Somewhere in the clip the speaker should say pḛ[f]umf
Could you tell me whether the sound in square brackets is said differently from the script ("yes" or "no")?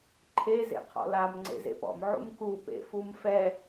no